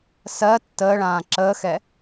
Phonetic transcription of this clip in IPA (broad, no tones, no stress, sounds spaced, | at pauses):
s ɜ tː əː ɭ ãː ǁ əː x ɛ